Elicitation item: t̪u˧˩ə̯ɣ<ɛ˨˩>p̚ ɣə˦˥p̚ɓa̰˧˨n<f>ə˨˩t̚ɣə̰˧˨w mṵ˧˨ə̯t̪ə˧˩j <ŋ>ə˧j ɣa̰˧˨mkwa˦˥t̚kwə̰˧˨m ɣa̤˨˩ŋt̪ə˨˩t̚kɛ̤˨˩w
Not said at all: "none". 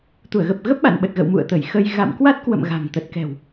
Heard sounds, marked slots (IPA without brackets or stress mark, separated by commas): ə˨˩, ɓ, x